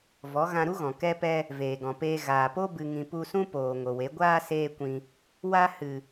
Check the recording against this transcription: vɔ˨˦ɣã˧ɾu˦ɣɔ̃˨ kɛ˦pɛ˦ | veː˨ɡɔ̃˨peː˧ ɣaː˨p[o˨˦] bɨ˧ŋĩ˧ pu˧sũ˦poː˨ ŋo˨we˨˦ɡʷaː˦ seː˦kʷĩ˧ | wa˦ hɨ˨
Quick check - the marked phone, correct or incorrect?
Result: incorrect